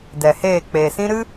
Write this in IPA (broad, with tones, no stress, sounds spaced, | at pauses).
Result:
d ɛ˨ h eː˦˨ k͡p e˨ s ĩ˦ ɾ ɨ˦